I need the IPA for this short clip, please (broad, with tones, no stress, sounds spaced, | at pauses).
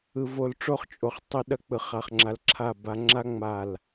ɯ˨ v o˨ l ʈ͡ʂ o˦ χ t͡ʃʼ o˨ χ tˤ a˦ ɗ ɐ˦ k͡p ɯ˨ χ a˨ χ ŋ͡ǁ a˨ l ǁʰ a˦˨ b a˦ ŋ͡ǁ a˦ ŋ͡m a˦˨ l